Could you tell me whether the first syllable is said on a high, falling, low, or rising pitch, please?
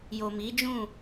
low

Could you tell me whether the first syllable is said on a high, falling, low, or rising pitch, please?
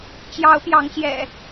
rising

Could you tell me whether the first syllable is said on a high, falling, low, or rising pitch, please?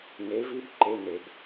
rising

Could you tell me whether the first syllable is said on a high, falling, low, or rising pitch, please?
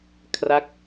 falling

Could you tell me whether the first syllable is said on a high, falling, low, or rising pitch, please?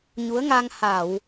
rising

